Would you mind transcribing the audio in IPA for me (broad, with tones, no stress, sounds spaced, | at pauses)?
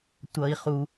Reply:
tʷ ʌ˦ i̯ χ u˦